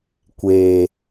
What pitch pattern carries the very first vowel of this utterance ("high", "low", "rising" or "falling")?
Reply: low